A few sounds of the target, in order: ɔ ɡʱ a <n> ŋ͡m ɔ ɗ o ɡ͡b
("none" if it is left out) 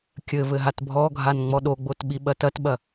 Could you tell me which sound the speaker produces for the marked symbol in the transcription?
n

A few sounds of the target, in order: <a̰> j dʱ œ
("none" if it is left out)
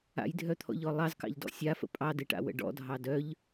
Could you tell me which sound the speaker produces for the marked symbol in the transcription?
a̰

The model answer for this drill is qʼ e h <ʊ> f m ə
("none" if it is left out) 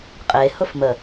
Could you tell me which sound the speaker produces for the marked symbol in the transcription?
ʊ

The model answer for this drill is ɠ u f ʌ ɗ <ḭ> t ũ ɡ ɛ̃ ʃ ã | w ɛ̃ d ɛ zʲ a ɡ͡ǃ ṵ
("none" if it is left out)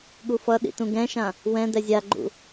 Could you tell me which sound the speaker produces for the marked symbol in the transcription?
ḭ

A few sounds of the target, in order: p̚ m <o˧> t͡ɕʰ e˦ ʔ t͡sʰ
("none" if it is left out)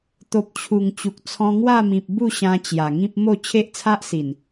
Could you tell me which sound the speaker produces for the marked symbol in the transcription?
o˥˧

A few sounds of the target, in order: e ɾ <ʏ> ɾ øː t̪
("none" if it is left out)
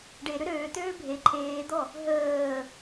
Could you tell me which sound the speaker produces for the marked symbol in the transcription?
ʏ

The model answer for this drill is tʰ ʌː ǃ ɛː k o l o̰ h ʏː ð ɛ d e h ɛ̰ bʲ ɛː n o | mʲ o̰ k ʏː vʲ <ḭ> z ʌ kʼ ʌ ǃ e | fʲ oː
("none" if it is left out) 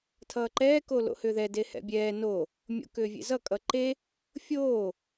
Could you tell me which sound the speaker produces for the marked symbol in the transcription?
ḛ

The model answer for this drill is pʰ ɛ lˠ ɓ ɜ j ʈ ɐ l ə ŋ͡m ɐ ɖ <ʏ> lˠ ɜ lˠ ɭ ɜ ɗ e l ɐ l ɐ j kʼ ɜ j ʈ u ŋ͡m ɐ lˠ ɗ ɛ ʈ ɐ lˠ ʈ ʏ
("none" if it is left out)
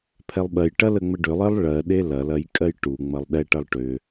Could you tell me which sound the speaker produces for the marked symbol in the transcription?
ʏ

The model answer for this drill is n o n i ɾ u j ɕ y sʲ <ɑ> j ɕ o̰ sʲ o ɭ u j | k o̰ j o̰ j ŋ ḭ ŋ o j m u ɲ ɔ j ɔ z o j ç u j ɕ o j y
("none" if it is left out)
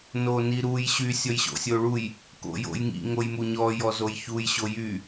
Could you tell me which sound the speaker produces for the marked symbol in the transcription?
ɔ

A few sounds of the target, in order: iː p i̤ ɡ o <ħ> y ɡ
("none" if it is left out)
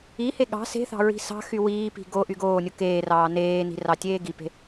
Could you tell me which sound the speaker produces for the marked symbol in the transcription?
ʔ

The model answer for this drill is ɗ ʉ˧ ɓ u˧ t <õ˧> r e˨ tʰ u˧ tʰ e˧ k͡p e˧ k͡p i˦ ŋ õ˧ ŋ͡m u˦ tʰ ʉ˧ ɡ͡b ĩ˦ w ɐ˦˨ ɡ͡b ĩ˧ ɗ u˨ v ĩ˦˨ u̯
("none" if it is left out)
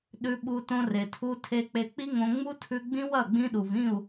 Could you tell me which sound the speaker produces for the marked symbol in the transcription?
õ˧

